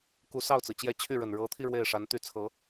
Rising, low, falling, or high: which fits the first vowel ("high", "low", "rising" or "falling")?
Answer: rising